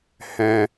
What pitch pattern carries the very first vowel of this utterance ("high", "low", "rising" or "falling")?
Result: high